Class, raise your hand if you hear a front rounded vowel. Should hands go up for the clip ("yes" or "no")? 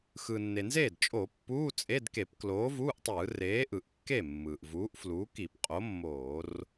no